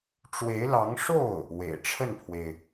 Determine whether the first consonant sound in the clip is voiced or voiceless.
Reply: voiceless